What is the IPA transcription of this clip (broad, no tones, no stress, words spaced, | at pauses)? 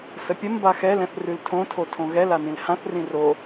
səpʲəm baxɛlɛ̃θ rʉltʰõtʰo tʰõɣɛ lanĩlhãθ rĩro